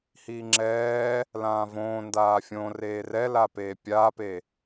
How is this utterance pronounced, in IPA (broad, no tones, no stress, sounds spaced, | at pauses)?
h iː ŋ͡ǁ ɛː | l ãː v õː n d aː fʲ õ r eː r ɛ l a p eː pʲ aː p e